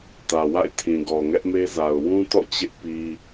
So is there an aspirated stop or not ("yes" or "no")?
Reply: yes